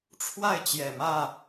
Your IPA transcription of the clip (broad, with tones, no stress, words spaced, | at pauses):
ʈ͡ʂʰwa˥˨ɪ̯t͡ɕjɛ˨˩mä˥˨